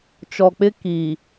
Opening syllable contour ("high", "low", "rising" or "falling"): low